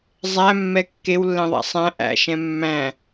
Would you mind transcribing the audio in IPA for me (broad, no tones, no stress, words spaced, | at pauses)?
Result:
zˤæmːɛ kːewlːɛ̃ðˤæ̰ sˤæ̃ ʔæ̰ʃɛ̃ mːæ̃